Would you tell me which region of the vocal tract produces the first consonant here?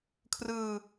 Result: velum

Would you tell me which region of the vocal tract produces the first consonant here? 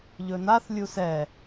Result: palate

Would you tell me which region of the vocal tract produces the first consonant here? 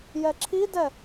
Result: palate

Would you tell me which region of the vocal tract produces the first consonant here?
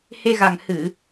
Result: throat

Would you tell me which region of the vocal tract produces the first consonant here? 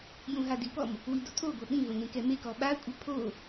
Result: palate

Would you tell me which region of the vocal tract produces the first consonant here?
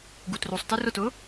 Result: velum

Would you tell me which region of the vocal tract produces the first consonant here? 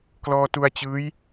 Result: velum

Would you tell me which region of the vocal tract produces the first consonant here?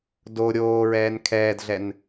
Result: tongue tip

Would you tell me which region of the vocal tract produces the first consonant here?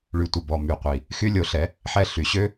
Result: retroflex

